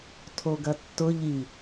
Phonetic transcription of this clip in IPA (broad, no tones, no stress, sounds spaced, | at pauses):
tʰ o ɡ ɐ tː ʊ ʎ i